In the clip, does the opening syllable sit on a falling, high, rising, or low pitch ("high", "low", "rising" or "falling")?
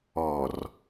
low